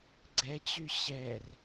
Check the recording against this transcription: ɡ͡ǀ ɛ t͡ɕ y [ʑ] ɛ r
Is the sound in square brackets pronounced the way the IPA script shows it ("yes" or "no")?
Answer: no